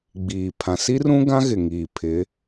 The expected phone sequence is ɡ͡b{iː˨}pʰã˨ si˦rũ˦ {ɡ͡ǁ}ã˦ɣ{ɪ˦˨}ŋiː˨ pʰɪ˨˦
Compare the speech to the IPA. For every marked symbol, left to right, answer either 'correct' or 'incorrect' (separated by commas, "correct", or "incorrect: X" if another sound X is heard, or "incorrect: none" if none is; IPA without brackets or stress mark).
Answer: correct, incorrect: ɡ, incorrect: ɪ˨